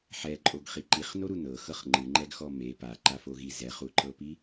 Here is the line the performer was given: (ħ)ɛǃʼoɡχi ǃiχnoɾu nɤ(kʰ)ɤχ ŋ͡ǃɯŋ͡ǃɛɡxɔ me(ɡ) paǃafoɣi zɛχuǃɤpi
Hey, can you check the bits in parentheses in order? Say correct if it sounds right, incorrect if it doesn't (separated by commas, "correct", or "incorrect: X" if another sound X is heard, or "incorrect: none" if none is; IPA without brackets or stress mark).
correct, incorrect: x, incorrect: none